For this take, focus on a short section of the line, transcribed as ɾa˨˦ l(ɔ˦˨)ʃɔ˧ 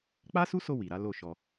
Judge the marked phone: incorrect: o˦˨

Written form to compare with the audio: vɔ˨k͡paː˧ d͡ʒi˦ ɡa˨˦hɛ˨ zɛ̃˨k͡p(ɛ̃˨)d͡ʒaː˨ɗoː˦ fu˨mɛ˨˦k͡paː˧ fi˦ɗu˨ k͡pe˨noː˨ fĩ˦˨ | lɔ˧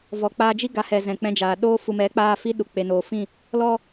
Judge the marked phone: incorrect: ɛ̃˧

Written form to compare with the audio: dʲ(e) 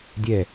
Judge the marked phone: incorrect: ɛ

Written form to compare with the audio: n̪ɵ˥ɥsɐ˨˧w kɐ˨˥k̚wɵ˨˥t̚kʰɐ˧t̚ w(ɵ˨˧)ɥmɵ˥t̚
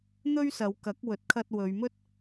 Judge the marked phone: correct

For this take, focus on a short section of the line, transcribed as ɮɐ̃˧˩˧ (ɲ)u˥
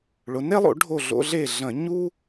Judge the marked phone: correct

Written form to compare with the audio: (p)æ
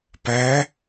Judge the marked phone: correct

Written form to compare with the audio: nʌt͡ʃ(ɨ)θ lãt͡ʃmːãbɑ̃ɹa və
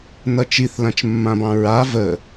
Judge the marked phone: incorrect: i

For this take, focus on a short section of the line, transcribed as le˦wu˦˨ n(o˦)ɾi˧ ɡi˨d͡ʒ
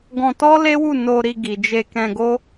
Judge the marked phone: incorrect: o˧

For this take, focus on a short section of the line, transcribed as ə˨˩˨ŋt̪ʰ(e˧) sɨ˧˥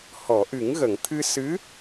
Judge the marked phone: incorrect: ɨ˧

